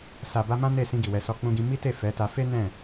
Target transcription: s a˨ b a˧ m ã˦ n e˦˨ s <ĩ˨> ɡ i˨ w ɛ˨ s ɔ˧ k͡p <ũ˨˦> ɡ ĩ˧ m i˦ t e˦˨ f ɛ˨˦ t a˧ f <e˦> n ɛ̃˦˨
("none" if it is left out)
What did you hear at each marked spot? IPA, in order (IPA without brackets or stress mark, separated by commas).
ĩ˧, ũ˧, e˦